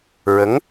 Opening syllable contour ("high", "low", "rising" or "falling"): rising